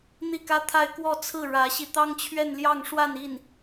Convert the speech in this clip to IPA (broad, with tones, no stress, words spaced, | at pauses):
n̪i˥˩kä˥t̪ʰa˥˧ɪ̯ kwɔ˥˧t͡sʰɹ̩˥˩ɻä˧˥ɕi˧ t̪ɑ˥ŋt͡ɕʰɥɛ˥˧nljɑ˥˧ŋʂwa˥˧n i˥˩n